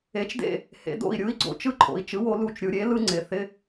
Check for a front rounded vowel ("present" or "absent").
absent